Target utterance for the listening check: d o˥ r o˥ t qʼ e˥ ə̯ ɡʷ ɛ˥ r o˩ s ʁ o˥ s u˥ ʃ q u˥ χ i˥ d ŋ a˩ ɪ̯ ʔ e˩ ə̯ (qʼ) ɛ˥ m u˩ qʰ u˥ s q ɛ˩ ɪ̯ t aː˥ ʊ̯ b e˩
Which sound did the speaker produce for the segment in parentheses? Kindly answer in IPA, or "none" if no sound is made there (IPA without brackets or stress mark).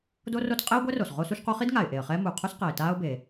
χ